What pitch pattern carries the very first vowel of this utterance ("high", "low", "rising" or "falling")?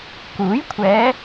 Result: rising